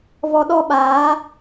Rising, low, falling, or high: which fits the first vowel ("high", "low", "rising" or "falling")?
high